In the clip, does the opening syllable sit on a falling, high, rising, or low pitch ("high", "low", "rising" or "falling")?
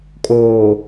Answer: low